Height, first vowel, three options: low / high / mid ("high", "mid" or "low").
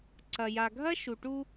low